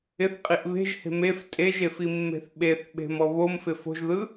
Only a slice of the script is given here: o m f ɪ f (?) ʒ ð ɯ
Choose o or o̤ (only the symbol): o̤